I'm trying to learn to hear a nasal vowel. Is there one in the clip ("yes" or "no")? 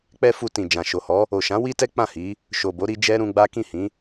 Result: yes